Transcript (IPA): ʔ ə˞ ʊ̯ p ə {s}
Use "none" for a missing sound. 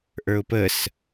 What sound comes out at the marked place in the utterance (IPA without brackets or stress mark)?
s